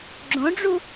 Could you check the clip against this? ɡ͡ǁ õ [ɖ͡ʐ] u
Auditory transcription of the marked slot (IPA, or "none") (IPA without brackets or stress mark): ɖ͡ʐ